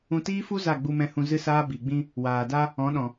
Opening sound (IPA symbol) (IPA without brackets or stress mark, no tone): ũ